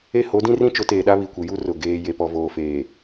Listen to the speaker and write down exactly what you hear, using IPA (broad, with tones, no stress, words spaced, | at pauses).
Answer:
e˦ho˨˦dĩ˦rĩ˦ t͡ʃʊ˨˦teː˨ɗa˦ βi˨kʷi˨ju˦ rʊ˨ ɡeː˦ je˨pɔ˨voː˨feː˨